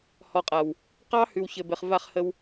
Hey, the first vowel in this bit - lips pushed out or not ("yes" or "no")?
yes